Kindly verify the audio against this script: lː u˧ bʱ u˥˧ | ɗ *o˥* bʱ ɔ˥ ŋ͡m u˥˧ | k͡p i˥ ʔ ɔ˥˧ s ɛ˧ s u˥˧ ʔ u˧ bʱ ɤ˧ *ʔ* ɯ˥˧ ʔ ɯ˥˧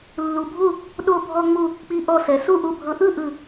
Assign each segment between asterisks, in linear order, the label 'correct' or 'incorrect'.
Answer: correct, correct

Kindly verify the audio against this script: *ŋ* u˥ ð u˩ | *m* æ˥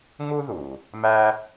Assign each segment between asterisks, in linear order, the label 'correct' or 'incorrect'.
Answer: correct, correct

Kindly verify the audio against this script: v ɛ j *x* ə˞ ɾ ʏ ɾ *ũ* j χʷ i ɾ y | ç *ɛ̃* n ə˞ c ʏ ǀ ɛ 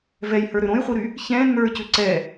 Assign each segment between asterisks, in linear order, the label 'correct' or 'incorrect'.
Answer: incorrect: h, incorrect: õ, correct

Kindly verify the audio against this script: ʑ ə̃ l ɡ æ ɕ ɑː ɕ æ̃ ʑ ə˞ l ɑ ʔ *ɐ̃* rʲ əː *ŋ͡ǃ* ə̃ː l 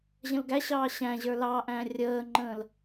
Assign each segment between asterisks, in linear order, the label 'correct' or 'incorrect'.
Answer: incorrect: æ̃, correct

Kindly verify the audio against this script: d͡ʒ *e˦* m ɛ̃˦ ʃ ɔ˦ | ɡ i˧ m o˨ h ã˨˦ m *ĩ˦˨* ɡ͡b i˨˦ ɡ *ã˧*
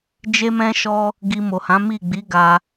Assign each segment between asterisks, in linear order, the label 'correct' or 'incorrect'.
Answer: correct, incorrect: i˦˨, incorrect: a˧

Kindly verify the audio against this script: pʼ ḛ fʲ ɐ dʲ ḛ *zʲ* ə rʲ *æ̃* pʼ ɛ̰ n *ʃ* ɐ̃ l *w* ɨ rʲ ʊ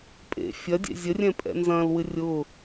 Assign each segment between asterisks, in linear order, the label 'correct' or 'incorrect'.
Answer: correct, incorrect: ɛ̃, incorrect: z, correct

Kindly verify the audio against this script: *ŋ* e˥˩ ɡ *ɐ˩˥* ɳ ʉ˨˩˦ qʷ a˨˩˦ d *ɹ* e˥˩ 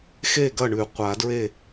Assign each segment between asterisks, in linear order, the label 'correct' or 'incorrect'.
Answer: incorrect: x, incorrect: ɐ˥˩, correct

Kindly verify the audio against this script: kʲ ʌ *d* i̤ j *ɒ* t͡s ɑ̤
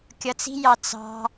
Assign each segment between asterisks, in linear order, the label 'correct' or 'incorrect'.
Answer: incorrect: t͡s, incorrect: ɑ

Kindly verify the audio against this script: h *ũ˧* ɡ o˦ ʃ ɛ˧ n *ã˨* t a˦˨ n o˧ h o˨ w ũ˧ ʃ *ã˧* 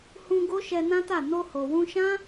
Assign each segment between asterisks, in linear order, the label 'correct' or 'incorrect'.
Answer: correct, incorrect: ã˦, incorrect: ã˦

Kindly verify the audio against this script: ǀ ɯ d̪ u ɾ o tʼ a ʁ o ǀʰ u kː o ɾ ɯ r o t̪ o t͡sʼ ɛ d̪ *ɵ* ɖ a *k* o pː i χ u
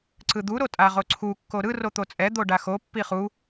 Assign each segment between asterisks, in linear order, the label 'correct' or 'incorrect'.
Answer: incorrect: o, incorrect: x

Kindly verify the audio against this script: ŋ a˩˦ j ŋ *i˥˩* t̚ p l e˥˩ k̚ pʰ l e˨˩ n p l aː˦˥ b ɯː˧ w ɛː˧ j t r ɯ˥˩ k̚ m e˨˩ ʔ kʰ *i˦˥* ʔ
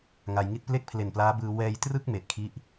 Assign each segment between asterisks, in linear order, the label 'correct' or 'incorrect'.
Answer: correct, incorrect: i˥˩

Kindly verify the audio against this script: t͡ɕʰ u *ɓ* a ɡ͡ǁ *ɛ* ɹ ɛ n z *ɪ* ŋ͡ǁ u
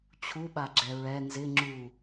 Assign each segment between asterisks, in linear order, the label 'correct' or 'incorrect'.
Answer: correct, correct, correct

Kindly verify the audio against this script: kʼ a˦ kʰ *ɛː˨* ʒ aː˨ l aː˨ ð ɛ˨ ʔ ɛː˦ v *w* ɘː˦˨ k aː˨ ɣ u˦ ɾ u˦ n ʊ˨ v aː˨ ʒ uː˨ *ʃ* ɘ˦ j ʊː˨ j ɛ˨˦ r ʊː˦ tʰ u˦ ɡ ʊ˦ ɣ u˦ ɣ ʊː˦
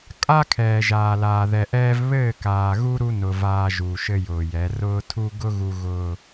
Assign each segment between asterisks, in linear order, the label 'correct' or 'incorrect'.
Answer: correct, incorrect: β, correct

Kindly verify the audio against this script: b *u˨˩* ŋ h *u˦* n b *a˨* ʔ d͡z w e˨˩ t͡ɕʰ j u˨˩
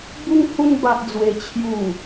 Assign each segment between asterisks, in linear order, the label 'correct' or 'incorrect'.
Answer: incorrect: u˦, incorrect: u˧, correct

